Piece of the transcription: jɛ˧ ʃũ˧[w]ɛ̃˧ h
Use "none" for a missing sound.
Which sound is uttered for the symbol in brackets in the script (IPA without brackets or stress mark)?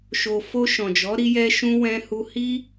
w